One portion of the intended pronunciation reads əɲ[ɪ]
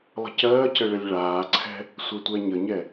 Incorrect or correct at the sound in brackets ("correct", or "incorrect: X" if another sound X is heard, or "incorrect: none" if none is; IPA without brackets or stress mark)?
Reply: incorrect: ɛ